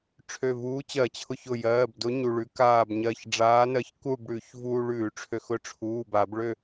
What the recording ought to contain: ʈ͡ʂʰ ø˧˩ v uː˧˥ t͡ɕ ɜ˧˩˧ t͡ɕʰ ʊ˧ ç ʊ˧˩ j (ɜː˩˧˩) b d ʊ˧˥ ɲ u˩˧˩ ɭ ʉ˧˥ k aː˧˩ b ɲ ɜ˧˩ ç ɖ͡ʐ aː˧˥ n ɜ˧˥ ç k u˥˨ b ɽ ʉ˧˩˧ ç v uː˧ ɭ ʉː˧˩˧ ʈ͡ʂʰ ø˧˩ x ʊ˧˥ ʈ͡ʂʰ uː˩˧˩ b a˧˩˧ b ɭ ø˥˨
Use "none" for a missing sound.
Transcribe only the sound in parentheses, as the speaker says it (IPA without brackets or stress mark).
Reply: ɜː˩˧˩